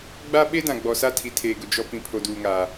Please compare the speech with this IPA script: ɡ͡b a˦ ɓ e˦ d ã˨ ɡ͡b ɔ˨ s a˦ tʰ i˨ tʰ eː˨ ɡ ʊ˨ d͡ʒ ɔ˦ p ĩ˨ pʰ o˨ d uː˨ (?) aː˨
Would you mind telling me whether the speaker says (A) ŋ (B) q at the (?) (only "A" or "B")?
A